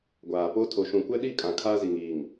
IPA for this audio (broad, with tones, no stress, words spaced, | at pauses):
ɡʷaː˨po˦ tʰo˨ʃũ˨kʷɛ˦ɗi˦˨ kʼã˨kʰaː˦zi˨ŋiː˨ŋ